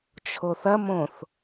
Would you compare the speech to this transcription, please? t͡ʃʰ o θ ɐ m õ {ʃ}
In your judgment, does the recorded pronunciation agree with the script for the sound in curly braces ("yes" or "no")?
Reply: no